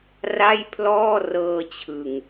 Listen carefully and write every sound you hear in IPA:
r a˥˩ j pʰ l ɔː˥˩ r ɤː˧ t͡ɕʰ ɯ˨˩ ŋ

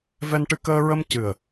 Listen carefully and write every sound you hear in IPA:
v ɛ˧ n ʈ ɨ˧ k əː˧ ɹ ə˧ m c ɨ˨˩ ə̯

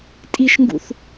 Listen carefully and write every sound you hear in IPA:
tʼ i ʃ ŋ ɡ ṵ θ

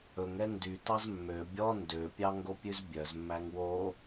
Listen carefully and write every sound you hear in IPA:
ɵ ŋ ɛ n d y t ɑ z mː ø bʲ ɔ n d ø pʲ ɑ ŋ ɡ o pʲ ʉ z bʲ œ z mː æ ŋ w o

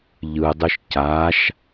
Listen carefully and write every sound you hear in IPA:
ʎ ɯ dˤ ɯ ʃ c a ʃ

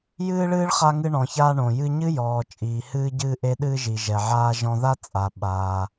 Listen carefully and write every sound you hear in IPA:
j ɨː˧ ɭ ɨː˧ ɭ χ a˧ ŋ ɨ˧ ɳ ɔ̃˩ ç aː˧ ɳ õ˩ j ɨ˧ ɲ ɨ˥ j ɔː˩ t͡ʃʼ iː˩ h ɨː˧ ɟ ɨː˧ ʔ e˧ ɗ ɨː˧ ʒ i˩ ʒ ɛ˩ ʕ aː˧ ʒ ɔ̃˧ ð a˥ t͡sʼ a˩ ɓ a˩

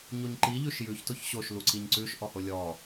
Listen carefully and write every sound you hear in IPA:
ɲ o ɲ ǃ i ʎ ʉ ʃ j ʉ ç t o ç ɕ o ʃ l u ǀ i ɲ ǀ ʉ ʃ ʔ ɔ h o lʲ ɔ

